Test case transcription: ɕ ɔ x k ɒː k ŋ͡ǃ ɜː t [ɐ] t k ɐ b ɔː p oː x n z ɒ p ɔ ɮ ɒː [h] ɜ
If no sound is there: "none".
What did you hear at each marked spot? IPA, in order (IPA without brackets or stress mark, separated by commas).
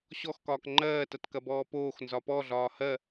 ɐ, h